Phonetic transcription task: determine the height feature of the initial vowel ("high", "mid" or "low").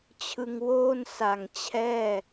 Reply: high